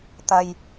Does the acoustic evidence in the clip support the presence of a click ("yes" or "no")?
no